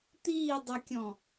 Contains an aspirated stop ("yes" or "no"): no